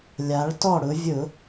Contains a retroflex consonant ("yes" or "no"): yes